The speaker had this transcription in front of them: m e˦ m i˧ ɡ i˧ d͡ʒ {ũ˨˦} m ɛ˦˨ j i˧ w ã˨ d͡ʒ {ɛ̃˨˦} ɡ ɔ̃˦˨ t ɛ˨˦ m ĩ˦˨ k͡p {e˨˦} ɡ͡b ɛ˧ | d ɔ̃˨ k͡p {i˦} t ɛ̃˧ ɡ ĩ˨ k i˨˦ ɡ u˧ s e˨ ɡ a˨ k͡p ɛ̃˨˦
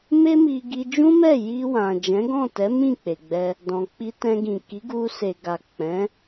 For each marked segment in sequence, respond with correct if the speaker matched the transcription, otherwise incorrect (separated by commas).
incorrect, correct, incorrect, incorrect